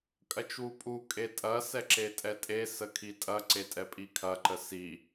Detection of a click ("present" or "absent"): present